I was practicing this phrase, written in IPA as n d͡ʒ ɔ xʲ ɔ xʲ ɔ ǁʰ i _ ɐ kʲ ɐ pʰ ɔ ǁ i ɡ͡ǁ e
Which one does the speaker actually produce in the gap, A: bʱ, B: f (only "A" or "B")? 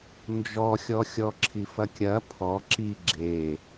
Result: B